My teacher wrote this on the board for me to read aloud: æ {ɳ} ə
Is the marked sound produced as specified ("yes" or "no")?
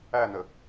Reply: no